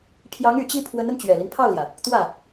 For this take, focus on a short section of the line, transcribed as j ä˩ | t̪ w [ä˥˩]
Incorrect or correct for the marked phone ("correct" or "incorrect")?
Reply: correct